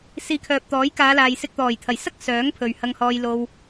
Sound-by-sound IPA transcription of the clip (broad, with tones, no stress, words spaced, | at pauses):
siː˨˧kʰœː˨p̚t̪ɔː˨˥j kaː˨˧laː˨jsɪ˧k̚ t̪ɔː˨˩jt̪ʰɐ˨˩jsɐ˥k̚ sœː˨˥ŋ pʰɵ˧ɥhɐ˥ŋhɔː˥jlo˥w